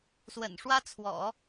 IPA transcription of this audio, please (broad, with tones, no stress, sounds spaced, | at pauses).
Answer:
s w ə̰˨˩ n ʂ w ä˥ t͡sʰ w ɔ̰˨˩˦